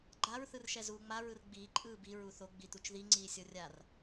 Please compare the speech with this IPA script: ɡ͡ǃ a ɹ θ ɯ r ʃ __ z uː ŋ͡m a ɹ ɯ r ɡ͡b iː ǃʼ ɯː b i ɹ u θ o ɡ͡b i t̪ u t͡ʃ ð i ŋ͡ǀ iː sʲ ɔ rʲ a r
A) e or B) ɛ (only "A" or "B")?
B